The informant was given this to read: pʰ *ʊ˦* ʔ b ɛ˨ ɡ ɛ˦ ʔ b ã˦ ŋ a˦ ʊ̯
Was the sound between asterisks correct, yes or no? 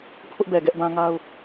yes